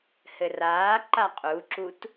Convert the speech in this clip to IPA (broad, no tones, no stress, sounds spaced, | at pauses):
h ɘ r aː ǃ a qʼ u ǁ u t